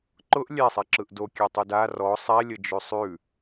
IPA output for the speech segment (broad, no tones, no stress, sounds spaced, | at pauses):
ǃ ʊ ʔ lʲ ɛ sˤ ɛ ǁ ɯ ʔ d o kʲ ɛ tˤ ʉ d a r ɔ sˤ ɛ lʲ ə d͡ʒ ʉ sˤ ʉ